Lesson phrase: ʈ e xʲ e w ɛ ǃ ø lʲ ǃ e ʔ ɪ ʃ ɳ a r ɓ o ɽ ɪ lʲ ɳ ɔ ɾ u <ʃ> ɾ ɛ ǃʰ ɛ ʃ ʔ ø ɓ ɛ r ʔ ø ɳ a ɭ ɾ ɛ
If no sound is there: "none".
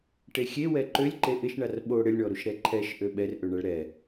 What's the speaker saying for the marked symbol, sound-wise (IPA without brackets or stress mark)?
ʃ